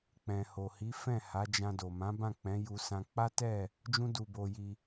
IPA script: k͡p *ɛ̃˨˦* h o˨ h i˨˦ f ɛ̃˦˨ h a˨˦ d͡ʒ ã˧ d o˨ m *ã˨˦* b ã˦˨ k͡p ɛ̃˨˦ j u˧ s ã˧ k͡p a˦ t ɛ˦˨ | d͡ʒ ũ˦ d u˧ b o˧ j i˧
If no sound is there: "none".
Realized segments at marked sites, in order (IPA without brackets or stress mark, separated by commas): ɛ̃˨, ã˨˦